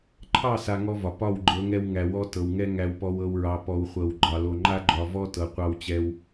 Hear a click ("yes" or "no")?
yes